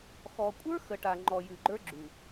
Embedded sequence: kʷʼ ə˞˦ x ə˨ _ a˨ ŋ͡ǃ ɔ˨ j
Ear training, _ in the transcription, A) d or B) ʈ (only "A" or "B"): B